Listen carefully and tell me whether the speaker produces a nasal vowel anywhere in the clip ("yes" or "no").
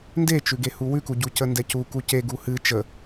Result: no